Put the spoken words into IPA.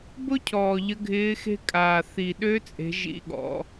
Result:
b ʊ˥ cʰ ɔː˨˩ ʎ ə˧˥ ɡʱ ɪː˧˥ x e̤˥ kʼ aː˨˩ θ i˨˩ ɗ ø˧˥ t͡sʼ e̤˩˧ ʒ ḭ˨˩ ɠ ɔ̰˩˧

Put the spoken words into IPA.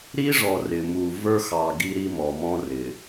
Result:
ɾ i˦ ʐ ɔ˨ r ɪ˨ m u˨ v ə˞˦ x ɑ˨ ɡ i˦ ɾ i˦ m ɔ˨ m ɔ̃˦ r ɪ˨

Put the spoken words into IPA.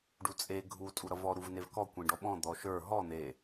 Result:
ɖ u t͡sʼ e ɡʱ u tʼ u ɾ ʌ v ɔ ɾ u v n e v k ɔ kʷ ẽ ɖ ɔ ɓ ɔ̃ d̪ ɔ ʃ ə˞ ɦ ɔ n̪ e

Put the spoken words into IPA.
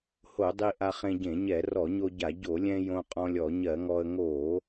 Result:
h o˧˩˧ dˤ i˧ ʔ a˧ χ ẽ˧ ɟ ẽ˧˩˧ ɲ ɛ˧˩˧ r ɔ˧˩˧ ɲ o˧ ɟ a˧˩˧ ɟ o˧˩˧ lʲ ɛ̃˧ j õ˧ qʼ ɔ̃˧ lʲ ɔ˧˩˧ ɲ ɜ˧˩˧ ŋ ɔ˧ ə̯ ŋ o˧˩˧

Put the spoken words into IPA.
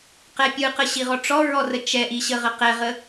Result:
q ɛ pʲ ɯ q ə ɕ i ʁ ɔ ʈ͡ʂ ɔ ɹ ɔ r ə t͡ʃ ɛ ʔ i ɕ ə ʁ ə q ɛ ʁ ə

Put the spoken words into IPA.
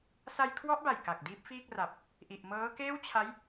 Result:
s a˧ j kʰ w ɔ˦˥ ʔ b a˨˩ j k a˨˩ k̚ d iː˦˥ p̚ f iː˥˩ k̚ r a˨˩ p̚ | ʔ i˨˩ ʔ m ɤː˦˥ k eː˥˩ w t͡ɕʰ a˦˥ j

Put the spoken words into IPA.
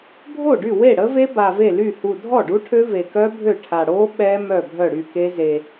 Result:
bʱ o˥˩ ɖ y˥˩ w e˥˩ ɽ ə˦˥ v e˦˥ b a˨˩ v e˥˩ l y˥˩ h u˨˩ dʱ ɔ˥˩ ɖ u˦˥ ʈʰ ø˦˥ v e˨˩ k œ˦˥ bʱ ø˥˩ ʈʰ a˨˩ ɽ o˦˥ ɓ ɛ˦˥ m œ˥˩ bʱ œ˥˩ ɽ y˥˩ k e˦˥ z e˨˩

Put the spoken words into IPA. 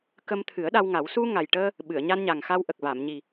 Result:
k ə˧ m t̪ʰ ɨ˨˩˦ ə̯ ɗ a˧ w ŋ a˨˩˦ w s u˧ ŋ a˨˩ j ʈ əː˧ | ɓ ɨ˨˩˨ ə̯ ɲ a˧ n ɲ a˨˩ ŋ x a˧ w ʔ ə˨˩ k̚ v a˨˩˨ m ɲ i˨˩

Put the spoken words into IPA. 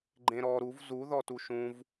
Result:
ɡ͡ǃ ẽ ɾ ɔ ɾ u v z u ð ɔ t u ʃ ũ v

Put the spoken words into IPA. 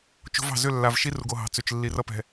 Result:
t͡ʃ o̤˦ v ɑ̤˨ z ʏ˦˨ lː a˨ v ʃ i˦ r u˨ ɡ o˨ ɦ ɑ̤˨ t͡s ʏ˨ t͡ʃ lː i˨ r ʌ˦ p ɛ̤˨

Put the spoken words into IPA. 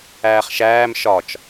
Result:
æː χ ʃ æː m ʃ ɒ t͡ʃ

